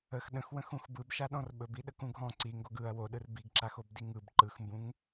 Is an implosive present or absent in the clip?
present